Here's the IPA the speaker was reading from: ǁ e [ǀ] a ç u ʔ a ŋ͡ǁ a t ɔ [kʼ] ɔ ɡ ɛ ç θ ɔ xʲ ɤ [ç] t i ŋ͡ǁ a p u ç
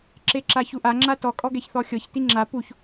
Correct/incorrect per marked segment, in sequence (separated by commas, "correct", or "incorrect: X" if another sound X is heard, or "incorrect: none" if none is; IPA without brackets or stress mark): incorrect: ǁ, correct, correct